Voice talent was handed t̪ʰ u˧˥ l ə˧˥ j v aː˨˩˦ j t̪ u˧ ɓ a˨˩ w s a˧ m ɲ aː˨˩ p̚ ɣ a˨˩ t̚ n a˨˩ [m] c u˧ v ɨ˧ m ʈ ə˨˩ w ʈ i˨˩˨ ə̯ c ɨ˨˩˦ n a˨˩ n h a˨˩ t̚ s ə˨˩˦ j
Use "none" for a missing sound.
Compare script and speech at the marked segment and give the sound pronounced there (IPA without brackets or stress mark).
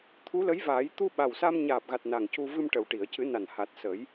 ŋ